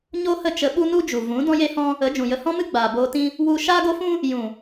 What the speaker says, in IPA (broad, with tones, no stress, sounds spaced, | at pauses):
ɲ o˦ h ə˦˨ t͡ʃ ə˧ ɓ u˦ n u˦ d͡ʒ u˨ v ũ˨˦ d ɔ̃˦ j e˦ h ɔ̃˦ | ə˨˦ d͡ʒ ũ˨ j ə˧ h ɔ̃˦ m ɨ˦ ɡ͡b aː˨ b oː˧ t ĩ˦ | w u˦ ʃ aː˦ ɡ o˦ f ũ˦ | j ũ˨